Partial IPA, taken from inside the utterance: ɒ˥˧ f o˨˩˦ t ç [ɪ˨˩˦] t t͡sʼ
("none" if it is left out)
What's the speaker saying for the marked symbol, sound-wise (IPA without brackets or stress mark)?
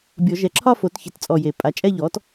ɪ˨˩˦